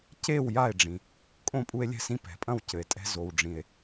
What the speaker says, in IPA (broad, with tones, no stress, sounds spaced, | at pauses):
c e˥˨ w j a˥˨ e̯ ɖ͡ʐ ĩ˩ | kʼ õ˥˨ pʼ u˦ e̯ lʲ ɛ̤˦ s ĩ˦ p ɛ̤˩ pʼ ɐ̃˥˨ w c ɘ˩ e̯ tʼ ɛ̤˦ z o˩ w ɖ͡ʐ ĩ˩ e̯